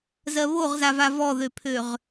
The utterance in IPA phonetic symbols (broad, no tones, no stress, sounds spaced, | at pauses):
z ɜ β o ʁ z a v a v ɔ ð ø pʰ ø ʁ